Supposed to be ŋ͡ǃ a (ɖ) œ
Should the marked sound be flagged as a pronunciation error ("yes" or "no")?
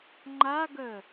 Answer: yes